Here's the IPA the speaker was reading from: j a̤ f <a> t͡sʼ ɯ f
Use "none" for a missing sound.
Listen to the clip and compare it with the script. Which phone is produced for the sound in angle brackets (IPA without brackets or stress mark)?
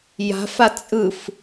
a